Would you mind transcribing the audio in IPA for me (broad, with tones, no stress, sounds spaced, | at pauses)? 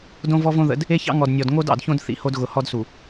d õ˦ v ɔ˦ v õ˦ ð ə̰˨˦ d | e˦ ç ɑ̰˦ ŋ ɔ˨ d nʲ ɔ˨ d ŋ o˦ d ɑ̰˨ d ç õ˦ d θ ḭ˨ h o˦ d ɣ ʊ˨ h ɔ˦ d s u˨